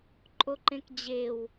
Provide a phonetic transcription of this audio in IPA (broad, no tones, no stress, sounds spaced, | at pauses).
ǃʼ o ǃ ẽ k d͡ʑ e w